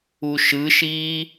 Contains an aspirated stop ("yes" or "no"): no